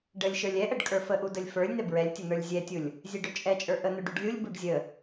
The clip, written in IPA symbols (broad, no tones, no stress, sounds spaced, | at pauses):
ɖ ə lʲ ʃ ə˞ lʲ ɛ ʔ ə ɖ kʼ ə˞ f ə ʔ u d ə lʲ f ə˞ lʲ n̪ ɛ b ɹ ɛ lʲ tʲ ə n ə˞ lʲ zʲ ɛ tʲ u lʲ | zʲ ɛ ɖ ɵ t͡ʃʼ ɛ t͡ʃʼ ə˞ ʔ ə n̪ ɵ ɖ u ɖ lʲ u lʲ b u ɖ zʲ ə